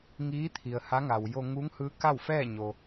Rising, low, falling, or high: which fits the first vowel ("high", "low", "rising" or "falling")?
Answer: rising